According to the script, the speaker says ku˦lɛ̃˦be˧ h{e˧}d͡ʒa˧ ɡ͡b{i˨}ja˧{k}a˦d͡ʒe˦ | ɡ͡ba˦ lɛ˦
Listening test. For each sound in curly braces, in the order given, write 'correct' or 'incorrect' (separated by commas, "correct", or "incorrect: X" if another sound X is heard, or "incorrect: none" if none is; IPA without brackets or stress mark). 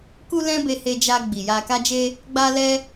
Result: correct, correct, correct